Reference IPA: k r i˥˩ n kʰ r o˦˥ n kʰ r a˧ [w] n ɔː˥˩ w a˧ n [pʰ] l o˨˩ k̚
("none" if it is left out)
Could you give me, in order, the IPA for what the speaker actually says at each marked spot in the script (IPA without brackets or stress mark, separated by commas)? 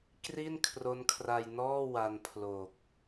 j, pʰ